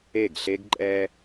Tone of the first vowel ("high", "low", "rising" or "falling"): falling